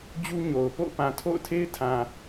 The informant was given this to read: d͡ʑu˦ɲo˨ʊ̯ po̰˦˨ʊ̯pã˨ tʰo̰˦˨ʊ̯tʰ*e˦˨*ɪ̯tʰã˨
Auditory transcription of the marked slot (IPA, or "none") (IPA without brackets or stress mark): e˦